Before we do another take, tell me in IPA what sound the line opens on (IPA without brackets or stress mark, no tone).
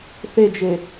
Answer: θ